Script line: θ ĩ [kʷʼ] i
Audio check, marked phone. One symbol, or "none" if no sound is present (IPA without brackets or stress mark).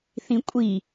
kʷʼ